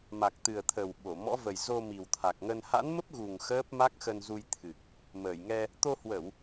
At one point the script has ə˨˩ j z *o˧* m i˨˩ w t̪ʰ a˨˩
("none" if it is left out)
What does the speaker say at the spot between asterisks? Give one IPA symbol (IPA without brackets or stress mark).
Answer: o˧